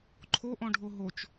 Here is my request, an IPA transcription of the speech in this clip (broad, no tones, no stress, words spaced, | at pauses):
ǃʰoʔɔ̃ɖʱo ɦot͡ʃ